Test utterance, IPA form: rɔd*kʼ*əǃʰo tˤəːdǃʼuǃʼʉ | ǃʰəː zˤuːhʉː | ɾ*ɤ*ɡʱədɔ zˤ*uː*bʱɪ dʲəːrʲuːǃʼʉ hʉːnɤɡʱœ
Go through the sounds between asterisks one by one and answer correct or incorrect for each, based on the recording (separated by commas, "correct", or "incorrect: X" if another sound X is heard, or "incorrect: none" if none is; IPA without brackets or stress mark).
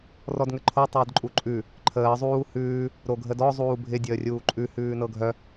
incorrect: ŋ, incorrect: o, correct